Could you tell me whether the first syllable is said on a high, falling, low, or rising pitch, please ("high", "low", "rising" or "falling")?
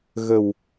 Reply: low